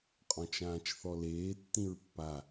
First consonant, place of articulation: uvular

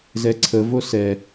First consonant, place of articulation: alveolar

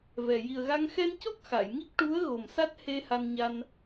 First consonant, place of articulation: labial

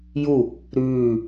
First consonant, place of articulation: palatal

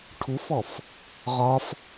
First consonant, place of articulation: retroflex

